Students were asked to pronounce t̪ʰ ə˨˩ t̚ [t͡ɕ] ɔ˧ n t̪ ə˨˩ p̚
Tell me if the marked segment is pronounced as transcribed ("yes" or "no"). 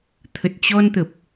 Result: yes